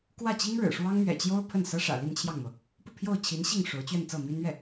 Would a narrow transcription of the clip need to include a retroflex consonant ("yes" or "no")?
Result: yes